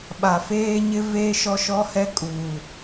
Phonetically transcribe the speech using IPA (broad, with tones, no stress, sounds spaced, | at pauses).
ɓ a˨ f eː˦ ɲ ɪ˦ v eː˦ ʃ ɔ˦ ʃ ɔ˦ h ɛ˦ kʼ uː˨